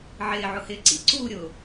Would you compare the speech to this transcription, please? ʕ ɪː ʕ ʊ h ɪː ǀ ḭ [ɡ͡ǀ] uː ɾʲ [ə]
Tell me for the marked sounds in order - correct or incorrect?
incorrect, incorrect

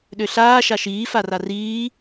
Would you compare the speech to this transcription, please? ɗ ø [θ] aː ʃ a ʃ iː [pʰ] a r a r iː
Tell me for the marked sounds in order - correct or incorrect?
incorrect, incorrect

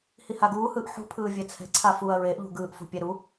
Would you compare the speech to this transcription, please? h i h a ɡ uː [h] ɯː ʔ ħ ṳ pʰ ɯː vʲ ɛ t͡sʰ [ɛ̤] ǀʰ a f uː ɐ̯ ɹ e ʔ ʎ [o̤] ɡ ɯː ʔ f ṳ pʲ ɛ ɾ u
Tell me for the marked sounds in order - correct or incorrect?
correct, correct, incorrect

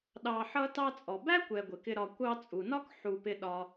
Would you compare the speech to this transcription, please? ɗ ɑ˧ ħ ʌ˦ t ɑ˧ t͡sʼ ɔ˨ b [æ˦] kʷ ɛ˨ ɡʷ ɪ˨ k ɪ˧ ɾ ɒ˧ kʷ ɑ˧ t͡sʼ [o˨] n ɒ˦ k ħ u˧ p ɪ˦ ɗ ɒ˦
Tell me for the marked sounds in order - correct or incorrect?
correct, incorrect

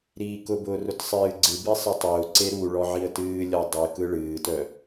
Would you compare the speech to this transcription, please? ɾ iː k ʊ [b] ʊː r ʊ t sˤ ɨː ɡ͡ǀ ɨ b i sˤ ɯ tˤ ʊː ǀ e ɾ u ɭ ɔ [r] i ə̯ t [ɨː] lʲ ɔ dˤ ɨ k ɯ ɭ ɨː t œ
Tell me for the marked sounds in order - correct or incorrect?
correct, incorrect, correct

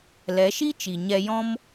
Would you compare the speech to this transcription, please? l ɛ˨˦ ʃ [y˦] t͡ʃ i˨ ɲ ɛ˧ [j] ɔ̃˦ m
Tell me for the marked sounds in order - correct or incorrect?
incorrect, correct

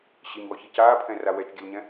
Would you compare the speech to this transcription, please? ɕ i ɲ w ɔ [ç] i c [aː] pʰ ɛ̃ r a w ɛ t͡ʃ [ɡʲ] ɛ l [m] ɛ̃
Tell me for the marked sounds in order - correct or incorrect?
correct, correct, correct, incorrect

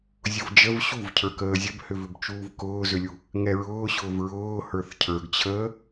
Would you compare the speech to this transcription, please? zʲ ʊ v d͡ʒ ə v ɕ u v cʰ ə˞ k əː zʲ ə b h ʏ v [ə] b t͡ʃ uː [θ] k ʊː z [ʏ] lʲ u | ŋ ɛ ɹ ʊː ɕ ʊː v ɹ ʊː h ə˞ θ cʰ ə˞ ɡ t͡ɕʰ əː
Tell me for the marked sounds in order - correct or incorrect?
incorrect, incorrect, correct

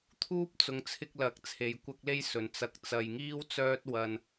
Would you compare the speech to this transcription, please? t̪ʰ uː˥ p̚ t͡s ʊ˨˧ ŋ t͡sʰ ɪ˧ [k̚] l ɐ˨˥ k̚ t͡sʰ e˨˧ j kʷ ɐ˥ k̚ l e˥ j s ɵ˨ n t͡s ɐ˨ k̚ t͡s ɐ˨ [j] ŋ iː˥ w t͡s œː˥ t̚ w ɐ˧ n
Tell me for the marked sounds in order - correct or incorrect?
correct, correct

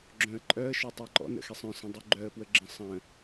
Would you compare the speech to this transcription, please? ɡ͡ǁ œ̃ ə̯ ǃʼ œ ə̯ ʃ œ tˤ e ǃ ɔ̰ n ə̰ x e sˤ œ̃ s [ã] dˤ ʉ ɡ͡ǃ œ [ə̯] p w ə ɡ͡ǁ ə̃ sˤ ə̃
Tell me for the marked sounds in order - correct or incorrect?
incorrect, correct

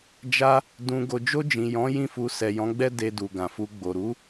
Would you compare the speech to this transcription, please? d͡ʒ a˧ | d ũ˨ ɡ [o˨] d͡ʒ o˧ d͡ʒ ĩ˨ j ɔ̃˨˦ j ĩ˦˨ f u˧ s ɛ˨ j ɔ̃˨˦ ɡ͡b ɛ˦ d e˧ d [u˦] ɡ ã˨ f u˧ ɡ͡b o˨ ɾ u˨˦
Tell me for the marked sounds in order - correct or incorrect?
correct, incorrect

